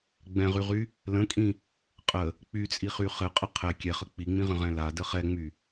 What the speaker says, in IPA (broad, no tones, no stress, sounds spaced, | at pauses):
ɡ͡b ɛ̃ ʁ y ʁ y | l ə̃ kʼ ĩ | qʼ ə | k͡p y t͡sʼ i χ y χ ɘ qʼ ə qʰ ɛ kʲ ɛ χ ə k͡p i ŋ͡m ĩ ʁ ə̃ ʁ ɛ̃ l a d ə χ ɛ ŋ͡m y